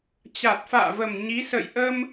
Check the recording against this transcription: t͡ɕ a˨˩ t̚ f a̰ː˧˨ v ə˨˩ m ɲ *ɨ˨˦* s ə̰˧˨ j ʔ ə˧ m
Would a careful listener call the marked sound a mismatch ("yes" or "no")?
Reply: yes